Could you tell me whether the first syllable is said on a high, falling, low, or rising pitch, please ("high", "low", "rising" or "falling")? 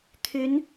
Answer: rising